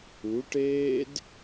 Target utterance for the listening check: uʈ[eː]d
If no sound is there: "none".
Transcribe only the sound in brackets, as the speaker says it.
eː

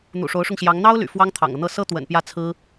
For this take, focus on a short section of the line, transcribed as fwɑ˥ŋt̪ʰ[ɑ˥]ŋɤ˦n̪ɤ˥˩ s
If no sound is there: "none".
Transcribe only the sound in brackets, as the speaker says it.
ɑ̰˨˩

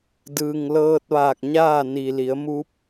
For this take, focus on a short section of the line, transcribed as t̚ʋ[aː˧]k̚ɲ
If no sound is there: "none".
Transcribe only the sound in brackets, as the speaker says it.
aː˧˩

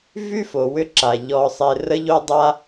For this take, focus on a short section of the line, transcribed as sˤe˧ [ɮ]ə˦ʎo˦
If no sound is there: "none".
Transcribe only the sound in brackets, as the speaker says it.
r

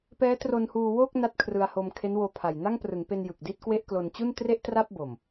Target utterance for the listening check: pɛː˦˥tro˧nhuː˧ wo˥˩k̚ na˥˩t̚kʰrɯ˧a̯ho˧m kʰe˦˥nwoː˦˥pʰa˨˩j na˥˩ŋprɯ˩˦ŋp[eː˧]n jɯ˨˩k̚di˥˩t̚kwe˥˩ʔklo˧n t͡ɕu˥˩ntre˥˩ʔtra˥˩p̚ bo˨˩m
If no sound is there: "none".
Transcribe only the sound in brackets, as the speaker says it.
e˧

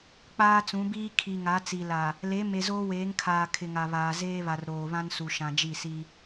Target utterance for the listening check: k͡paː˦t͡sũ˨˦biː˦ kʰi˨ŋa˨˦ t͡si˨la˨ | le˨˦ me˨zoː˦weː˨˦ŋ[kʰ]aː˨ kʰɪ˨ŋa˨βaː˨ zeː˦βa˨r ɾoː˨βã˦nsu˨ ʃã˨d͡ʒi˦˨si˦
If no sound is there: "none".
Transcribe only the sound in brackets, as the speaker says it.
kʰ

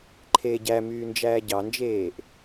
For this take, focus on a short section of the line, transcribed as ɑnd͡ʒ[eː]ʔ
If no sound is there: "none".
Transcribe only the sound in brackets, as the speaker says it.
eː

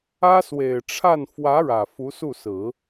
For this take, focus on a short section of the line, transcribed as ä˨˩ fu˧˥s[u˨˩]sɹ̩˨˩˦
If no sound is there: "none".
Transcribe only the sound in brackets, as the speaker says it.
u˥˩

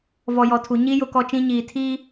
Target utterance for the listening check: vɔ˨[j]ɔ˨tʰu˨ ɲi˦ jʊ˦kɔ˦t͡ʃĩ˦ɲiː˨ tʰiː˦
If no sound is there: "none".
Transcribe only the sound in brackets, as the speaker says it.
j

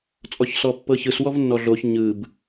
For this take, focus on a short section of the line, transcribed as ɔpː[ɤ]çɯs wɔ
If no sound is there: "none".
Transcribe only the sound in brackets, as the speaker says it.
ɤ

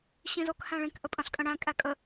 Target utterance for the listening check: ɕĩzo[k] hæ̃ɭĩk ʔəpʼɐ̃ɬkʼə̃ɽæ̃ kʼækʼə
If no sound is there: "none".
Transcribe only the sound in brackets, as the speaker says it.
k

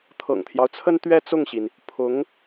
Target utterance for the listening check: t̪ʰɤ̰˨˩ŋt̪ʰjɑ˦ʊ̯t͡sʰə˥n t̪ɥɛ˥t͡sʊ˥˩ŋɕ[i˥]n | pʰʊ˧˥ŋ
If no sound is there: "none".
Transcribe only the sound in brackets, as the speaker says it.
i˩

